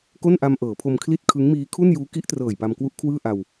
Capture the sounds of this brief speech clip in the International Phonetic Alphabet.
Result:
k o˥˩ n ʔ a˧ m ʔ ɤː˩˦ pʰ o˧ m kʰ l i˥˩ t̚ kʰ ɯ˦˥ ŋ m iː˦˥ kʰ u˥˩ n j uː˦˥ k i˦˥ ʔ t r ɤː˨˩ j p a˧ m k w u˦˥ ʔ kʰ w ɯː˥˩ ʔ a˧ w

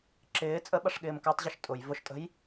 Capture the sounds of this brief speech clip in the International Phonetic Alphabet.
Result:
ǁ ɪː t͡sʼ ə ɓ ɐ ʂ ɠ ɪː m k a tˤ ʑ ʊ ʃ tʼ ʊ j v ʊ ʃ tʼ ə̤ j

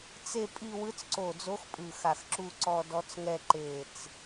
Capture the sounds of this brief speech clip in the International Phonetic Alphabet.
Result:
t͡s e˥˧ pʼ i˥˧ w ɯ˧˥ t͡s ǀ o˧˩ d͡z o˧˥ x pʼ ɯ˧˩ x a˧˩ x ǁ u˥˧ ǀ ɔ˥˧ d ɔ˧˥ t͡s ŋ ɛ˥˧ ǃ e˧˩ t͡s

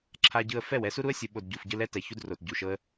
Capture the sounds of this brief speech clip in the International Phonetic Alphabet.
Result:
ǁʰ a˧ ɟ ɯ˧ ə̯ f ɛ˦˨ w ɛ˧ s u˦ ɾ u˦ ə̯ sʲ ɯ˨ ɓ o˨ d ɟ u˨ f ɟ ɯ˧ l ɛ˦ t ɛ˨ ç u˧ d r o˨ t ɟ u˨ ʃ ɤ˧ ə̯

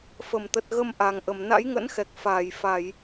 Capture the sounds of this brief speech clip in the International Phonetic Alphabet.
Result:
f ə˧˩ m t̪ ə˨˩ t̚ ɣ ə˧ m ʔ a˨˩ ŋ ʔ ə˧˩ m n a̰˧˥ j ŋ ə̰˧˥ n x ɛ˨˩ k̚ f aː˧˩ j f a˧˩˨ j

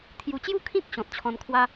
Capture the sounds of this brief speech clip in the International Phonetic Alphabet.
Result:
t̪ʰ j u˨˩ t͡ɕ j u˥˧ kʰ ĩ˦ k̚ ɕ ɔ̃˨ t̚ t͡ɕʰ ɔ̃˧ n kʰ w a˦

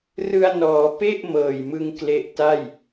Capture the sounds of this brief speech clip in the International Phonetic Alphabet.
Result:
r ɯ˧ a̯ n ɔː˩˦ p e˥˩ ʔ m ɤː˨˩ j m ɯ˧ ŋ k l e˦˥ ʔ t a˥˩ j

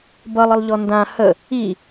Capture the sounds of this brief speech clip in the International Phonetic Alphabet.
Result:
b ʌ lˠ ə lˠ ʎ ɔ n d ã h ə | i

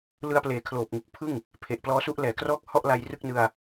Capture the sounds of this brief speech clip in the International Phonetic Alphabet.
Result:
l ɯ˧ a̯ p l eː˨˩ kʰ l oː˨˩ p̚ ŋ u˨˩ k̚ pʰ ɯ˥˩ ŋ | pʰ e˨˩ ʔ p l ɔː˦˥ s u˦˥ ʔ l ɛː˩˦ k r ɔː˥˩ k̚ h ɔ˥˩ ʔ l a˧ j r ɯ˥˩ k̚ n ɯ˧ a̯

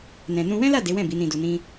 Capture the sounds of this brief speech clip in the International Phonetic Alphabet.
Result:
n ɛ̃˨ n ũ˧ w ɛ̃˦ l a˦˨ d e˨˦ w ɛ̃˦˨ b i˨˦ n ĩ˧ d u˧ n ĩ˦

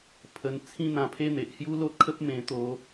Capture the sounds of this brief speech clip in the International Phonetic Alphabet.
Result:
pʰ ə˧ n t͡sʰ ĩ˧ n̪ ã˨˩ pʰ e˧ n̪ e˨ ʔ h j u˦ l o˦ t̚ kʰ ə˦ p̚ m ẽ˧ t̪ o˧

